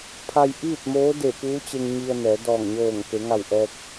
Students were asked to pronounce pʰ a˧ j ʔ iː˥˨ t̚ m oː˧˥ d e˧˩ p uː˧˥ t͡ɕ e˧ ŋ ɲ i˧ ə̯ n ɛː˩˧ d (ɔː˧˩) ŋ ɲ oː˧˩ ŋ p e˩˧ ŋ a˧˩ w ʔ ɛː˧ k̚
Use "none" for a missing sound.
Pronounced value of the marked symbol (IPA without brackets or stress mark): ɔː˧˩